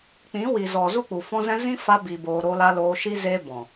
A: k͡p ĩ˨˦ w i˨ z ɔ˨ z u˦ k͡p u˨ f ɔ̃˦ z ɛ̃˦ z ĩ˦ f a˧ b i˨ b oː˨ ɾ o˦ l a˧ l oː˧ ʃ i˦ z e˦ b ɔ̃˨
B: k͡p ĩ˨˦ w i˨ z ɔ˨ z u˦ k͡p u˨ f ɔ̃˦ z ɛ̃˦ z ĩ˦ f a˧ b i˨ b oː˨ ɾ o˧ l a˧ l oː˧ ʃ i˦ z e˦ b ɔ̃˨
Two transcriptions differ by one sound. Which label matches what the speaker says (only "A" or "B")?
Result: B